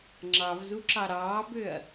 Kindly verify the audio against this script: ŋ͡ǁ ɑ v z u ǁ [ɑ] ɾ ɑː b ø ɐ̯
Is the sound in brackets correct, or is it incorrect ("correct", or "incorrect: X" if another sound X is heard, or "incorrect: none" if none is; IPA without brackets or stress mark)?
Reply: correct